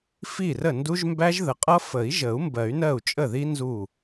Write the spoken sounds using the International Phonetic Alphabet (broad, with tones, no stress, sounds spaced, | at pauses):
f i˥˩ r ə˥˩ n d u˦˥ ʒ m b æ˦˥ ʒ ð ə˨˦ qʼ ʌ˦˥ f ə˨˩˦ i̯ ʒ ə˨˩˦ u̯ m b ɜ˨˩˦ y̯ n ɜ˥˩ u̯ t͡ʃʼ ə˥˩ ð i˦˥ n z u˥˩